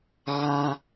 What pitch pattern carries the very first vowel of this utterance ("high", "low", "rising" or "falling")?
low